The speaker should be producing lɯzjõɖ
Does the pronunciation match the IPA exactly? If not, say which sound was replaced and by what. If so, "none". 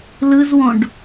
j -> w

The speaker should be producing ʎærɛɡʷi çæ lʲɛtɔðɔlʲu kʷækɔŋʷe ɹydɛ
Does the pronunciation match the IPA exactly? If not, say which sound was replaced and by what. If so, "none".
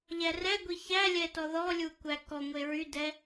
none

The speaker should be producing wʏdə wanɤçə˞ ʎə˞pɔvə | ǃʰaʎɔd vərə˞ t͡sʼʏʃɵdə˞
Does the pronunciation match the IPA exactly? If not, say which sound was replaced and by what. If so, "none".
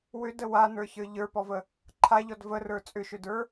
ɤ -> ə˞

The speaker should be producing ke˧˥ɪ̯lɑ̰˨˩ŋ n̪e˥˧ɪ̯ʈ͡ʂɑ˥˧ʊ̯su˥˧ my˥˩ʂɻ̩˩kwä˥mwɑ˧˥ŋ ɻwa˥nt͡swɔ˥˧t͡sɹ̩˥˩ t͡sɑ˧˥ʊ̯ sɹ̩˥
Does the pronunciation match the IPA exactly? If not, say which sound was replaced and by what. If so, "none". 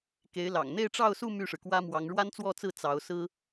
none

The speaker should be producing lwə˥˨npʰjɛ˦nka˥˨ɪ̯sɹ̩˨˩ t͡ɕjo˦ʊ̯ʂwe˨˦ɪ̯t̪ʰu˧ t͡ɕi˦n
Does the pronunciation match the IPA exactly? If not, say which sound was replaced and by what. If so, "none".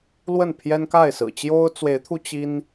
ʂ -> t͡s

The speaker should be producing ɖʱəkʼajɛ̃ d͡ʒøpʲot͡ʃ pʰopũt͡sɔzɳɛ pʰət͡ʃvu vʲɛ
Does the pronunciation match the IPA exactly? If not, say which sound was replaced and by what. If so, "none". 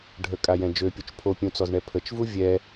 p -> pʲ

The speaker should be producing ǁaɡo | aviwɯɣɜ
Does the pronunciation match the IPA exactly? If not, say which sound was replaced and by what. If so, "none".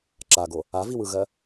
none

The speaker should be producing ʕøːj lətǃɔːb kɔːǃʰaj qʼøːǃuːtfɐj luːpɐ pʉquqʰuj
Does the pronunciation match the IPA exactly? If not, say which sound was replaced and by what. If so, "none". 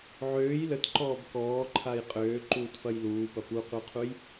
ʉ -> u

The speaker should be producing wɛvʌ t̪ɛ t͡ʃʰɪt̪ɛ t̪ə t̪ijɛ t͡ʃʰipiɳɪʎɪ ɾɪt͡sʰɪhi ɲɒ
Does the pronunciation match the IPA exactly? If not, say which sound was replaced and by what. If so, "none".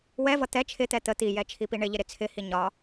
none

